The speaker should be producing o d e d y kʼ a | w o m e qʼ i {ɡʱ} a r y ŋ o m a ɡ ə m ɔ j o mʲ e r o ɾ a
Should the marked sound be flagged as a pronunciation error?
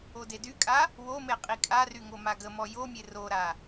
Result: yes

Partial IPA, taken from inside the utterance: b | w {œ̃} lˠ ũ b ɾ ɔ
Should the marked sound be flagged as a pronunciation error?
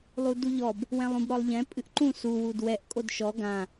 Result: yes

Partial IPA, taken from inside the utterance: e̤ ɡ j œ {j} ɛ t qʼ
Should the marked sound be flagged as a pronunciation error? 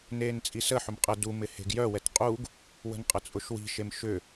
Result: yes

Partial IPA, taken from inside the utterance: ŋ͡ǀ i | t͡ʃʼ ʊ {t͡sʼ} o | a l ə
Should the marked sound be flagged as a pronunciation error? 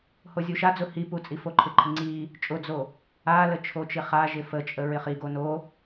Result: yes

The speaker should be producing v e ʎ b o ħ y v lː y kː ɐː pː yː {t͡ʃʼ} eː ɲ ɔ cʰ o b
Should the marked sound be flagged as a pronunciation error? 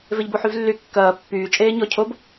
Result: no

